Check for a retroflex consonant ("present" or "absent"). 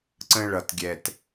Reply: present